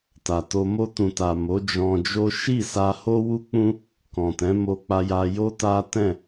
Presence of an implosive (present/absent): absent